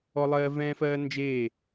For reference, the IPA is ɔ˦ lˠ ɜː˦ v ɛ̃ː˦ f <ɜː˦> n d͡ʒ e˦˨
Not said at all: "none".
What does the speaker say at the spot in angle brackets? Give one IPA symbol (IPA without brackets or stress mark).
ɜː˦